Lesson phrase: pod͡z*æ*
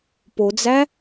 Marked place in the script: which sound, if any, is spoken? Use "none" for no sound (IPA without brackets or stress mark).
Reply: æ